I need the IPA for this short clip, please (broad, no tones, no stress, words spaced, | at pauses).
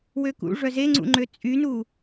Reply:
wøkṵ ʐœzeŋ͡ǀṵŋ͡ǃø t͡sʼynu